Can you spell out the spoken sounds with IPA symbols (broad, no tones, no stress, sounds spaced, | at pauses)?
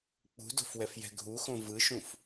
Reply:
k͡p ṳ d o̤ f w ɛ f j ɛ̤ ɡʱ u x õ v ɯ ʃ ũ f